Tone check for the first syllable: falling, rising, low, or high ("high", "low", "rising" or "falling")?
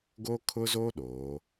high